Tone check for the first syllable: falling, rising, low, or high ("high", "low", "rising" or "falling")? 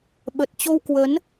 low